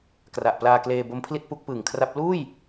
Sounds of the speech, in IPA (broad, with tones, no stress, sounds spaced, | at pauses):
k r a˨˩ ʔ p l aː˧ k l eː˧ b o˦˥ m pʰ l i˥˩ t̚ p u˦˥ k̚ p ɯː˨˩ ŋ kʰ r a˦˥ p̚ l uː˥˩ j